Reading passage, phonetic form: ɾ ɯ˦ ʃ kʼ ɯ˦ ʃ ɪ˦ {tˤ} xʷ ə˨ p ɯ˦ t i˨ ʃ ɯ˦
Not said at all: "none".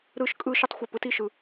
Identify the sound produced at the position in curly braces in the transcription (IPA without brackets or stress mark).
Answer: tˤ